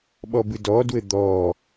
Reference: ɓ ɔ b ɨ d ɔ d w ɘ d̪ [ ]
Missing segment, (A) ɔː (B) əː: A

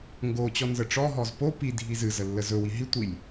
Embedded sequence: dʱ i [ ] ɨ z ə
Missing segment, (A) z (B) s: A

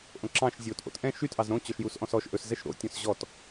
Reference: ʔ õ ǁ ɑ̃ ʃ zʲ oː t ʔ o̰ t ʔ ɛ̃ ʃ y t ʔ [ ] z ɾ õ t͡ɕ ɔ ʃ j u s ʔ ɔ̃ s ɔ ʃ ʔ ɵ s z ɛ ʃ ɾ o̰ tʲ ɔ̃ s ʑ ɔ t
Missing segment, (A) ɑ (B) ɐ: A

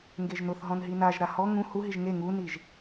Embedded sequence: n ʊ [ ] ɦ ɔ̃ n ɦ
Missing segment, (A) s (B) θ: B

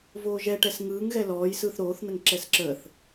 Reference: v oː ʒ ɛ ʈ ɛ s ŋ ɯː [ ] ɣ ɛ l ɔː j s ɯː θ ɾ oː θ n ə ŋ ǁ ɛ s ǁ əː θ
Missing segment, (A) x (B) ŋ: B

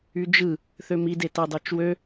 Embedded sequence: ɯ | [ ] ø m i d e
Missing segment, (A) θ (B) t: A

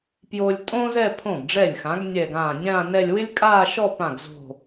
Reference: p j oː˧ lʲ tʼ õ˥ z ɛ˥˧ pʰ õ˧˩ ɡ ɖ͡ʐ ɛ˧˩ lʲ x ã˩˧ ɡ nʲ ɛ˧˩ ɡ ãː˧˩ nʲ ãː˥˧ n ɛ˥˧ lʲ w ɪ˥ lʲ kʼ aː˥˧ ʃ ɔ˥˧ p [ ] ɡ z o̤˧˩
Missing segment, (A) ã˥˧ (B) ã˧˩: B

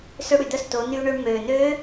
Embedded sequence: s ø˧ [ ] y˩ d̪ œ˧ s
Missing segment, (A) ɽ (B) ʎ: A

